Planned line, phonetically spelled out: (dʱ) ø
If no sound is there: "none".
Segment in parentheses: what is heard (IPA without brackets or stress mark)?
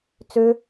t͡s